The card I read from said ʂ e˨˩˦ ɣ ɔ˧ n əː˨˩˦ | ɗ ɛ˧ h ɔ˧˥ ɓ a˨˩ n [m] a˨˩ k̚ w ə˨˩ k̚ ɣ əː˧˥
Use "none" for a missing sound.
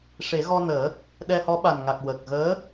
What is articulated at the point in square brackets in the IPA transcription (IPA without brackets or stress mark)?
ŋ